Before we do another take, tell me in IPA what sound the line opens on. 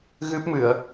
ɣ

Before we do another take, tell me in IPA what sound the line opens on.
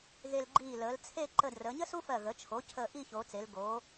ɣ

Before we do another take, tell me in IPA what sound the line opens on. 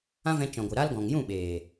ã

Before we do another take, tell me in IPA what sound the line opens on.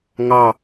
ŋ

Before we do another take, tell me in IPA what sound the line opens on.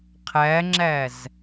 qʰ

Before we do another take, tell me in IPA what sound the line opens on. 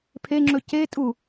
pʰ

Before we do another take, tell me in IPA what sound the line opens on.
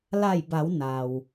l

